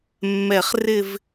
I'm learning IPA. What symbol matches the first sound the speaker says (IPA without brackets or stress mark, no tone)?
mː